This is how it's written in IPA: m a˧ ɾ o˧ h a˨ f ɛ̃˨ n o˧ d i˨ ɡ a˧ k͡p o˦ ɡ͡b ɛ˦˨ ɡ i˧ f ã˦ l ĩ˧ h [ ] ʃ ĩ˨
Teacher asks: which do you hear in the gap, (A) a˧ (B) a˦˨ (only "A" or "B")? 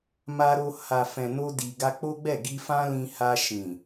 A